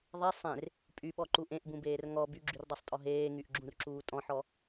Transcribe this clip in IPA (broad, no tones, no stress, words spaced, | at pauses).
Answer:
ðˤe sˤẽr | pʼyɓɔǃu ʔẽʔbũbeːr ŋɔ byɡ͡ǁyrdˤɤsˤtʼɔ ɦeːŋyʔɡ͡ǁũrǁuː tʼɔ̃ħɔ